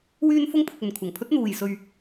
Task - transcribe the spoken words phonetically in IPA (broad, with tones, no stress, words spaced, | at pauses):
wyː˧nfʊ˧ŋpʰʊ˨k̚ ɵ˨nkʷʰɐ˨˩ŋpʰɵ˥t̚ n̪uː˨jsɵ˧ɥ